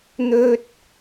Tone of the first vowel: high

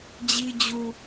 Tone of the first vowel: high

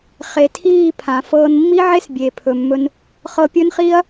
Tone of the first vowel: low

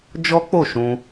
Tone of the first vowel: high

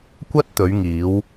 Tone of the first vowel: high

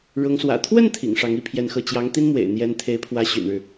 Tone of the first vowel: rising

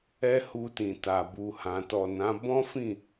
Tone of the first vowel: high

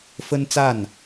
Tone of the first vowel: high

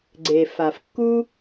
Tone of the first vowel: low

